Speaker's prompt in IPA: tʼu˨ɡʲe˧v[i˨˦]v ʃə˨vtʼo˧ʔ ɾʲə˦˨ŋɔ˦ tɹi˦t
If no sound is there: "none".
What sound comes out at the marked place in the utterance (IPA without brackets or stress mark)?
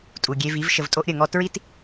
i˨˦